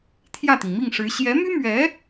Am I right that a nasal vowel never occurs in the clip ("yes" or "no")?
yes